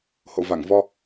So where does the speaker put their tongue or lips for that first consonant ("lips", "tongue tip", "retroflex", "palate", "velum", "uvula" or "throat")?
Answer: throat